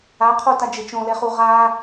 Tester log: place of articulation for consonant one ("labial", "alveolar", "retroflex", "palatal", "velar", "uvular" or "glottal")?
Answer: uvular